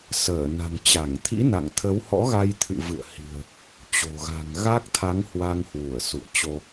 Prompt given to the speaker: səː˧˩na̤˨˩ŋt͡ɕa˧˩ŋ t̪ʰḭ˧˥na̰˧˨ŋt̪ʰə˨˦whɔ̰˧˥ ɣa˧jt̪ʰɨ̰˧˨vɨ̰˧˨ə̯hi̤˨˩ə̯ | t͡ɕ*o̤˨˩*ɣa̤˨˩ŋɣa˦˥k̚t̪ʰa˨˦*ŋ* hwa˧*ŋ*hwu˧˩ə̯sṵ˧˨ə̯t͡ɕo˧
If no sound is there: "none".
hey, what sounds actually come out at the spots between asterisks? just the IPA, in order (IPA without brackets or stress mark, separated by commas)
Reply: o̤˨˩, ŋ, ŋ